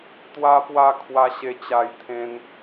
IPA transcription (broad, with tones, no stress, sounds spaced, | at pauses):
t̪ w a˧ p w a˧ kʰ w a˧ ɕ e˧ t͡ɕ a˧ j t̪ʰ ẽ˧ n